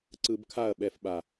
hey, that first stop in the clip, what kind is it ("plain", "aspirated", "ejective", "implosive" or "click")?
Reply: click